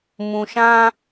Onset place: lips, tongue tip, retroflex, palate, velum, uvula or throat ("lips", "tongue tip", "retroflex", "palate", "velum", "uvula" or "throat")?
lips